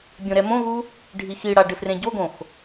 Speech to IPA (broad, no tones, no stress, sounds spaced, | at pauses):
bʲ õ ɾ ɛ m õ ɣ u | ɖʱ i x i ɽ a ɖ ɪ f r ẽ ɟ o ɡ õ x